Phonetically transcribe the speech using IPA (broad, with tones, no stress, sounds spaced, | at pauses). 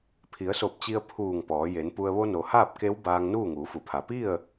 pʰ i˩˧ ə̯ s o˧˩ p̚ t͡ɕ i˧ ə̯ pʰ uː˧˩ ŋ p ɔː˩˧ j e˩˧ n p u˧ ə̯ ʋ o˧ n o˩ h aː˥˨ p̚ k e˧˥ w b aː˧ ŋ n uː˥˨ ŋ uː˩˧ f u˩˧ pʰ a˩ p i˥˨ ə̯